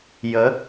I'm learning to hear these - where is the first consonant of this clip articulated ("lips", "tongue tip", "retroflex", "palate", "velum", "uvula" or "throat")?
palate